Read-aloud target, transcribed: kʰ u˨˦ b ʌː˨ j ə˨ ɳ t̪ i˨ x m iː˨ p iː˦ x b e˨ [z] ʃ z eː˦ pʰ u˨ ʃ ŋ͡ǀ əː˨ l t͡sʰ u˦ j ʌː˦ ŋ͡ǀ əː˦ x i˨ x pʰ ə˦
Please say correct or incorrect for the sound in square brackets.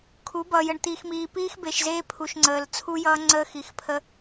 incorrect